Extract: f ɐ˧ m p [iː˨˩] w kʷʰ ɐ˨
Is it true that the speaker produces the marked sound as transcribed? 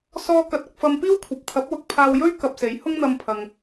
no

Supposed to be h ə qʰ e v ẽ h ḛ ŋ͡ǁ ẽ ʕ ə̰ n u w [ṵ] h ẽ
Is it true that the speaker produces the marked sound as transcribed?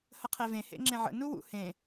yes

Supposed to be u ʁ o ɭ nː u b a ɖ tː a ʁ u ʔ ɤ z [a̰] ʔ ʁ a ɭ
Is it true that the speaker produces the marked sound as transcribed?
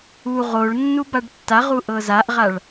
no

